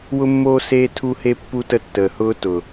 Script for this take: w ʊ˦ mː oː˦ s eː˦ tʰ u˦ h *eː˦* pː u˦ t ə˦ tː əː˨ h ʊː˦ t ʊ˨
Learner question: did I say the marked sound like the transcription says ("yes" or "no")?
no